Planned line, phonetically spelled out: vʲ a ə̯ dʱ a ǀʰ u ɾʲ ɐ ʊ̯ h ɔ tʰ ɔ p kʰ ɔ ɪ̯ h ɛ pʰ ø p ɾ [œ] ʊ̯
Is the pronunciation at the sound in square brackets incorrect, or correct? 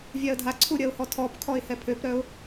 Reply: correct